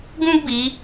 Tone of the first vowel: high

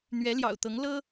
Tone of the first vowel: rising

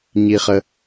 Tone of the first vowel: low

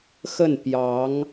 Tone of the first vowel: falling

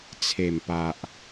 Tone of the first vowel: low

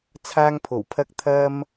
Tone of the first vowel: high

